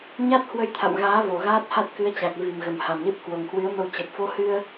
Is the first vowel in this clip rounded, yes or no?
no